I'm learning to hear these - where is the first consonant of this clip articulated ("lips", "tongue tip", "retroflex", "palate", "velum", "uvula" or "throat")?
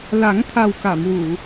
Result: tongue tip